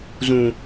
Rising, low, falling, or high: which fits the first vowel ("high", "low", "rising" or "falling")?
low